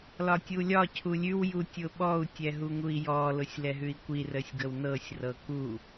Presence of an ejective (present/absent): absent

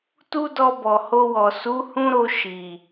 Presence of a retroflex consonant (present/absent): absent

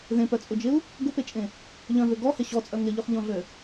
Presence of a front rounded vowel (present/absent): present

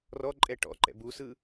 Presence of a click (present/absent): present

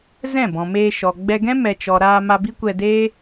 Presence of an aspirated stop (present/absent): absent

